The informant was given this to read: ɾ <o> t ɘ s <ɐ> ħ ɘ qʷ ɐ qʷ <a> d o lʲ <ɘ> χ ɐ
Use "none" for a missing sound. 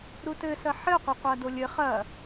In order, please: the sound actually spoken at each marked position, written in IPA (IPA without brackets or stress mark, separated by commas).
u, ɐ, a, ɘ